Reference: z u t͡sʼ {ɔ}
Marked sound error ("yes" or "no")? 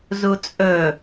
yes